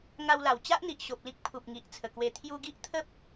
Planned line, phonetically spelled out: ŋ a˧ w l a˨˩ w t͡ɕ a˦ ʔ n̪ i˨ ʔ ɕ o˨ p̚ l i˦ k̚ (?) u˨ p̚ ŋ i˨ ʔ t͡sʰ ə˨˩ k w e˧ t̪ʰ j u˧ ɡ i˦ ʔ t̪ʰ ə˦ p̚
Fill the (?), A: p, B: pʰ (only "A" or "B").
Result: B